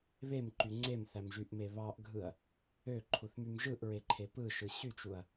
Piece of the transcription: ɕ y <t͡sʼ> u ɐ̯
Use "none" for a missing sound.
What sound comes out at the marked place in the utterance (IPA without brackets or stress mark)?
t͡ʃ